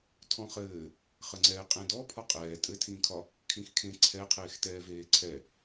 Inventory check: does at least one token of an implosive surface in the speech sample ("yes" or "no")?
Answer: no